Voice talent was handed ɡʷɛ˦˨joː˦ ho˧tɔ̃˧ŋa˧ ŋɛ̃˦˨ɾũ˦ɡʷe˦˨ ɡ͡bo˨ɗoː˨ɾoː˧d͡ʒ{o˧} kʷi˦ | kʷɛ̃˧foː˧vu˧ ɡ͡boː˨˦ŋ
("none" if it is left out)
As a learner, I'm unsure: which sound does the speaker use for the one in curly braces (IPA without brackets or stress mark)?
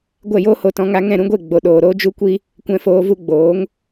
u˧